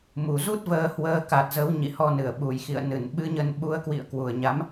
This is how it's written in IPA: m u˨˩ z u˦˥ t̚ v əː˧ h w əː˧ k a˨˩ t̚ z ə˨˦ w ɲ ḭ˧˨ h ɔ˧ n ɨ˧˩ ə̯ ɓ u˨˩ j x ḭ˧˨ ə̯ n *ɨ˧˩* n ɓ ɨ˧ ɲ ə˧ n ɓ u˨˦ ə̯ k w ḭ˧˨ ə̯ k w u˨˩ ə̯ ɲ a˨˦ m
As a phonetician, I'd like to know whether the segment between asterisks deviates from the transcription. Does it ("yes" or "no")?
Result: no